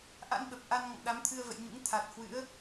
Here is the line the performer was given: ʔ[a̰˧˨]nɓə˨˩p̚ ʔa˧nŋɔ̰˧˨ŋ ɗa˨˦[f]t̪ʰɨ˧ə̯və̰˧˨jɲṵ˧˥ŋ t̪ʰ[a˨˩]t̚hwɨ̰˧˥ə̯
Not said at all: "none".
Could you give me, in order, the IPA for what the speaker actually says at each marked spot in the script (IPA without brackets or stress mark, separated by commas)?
a̰˧˥, m, a˨˩